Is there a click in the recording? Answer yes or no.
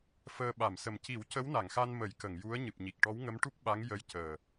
no